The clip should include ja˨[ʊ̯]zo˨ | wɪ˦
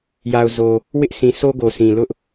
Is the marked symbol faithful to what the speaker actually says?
yes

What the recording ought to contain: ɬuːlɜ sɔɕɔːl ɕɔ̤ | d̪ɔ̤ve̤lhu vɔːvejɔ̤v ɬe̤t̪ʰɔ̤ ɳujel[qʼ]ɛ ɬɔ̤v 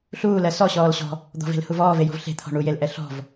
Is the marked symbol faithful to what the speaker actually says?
no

